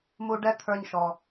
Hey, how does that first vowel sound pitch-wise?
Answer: high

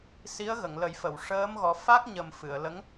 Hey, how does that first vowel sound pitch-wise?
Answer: rising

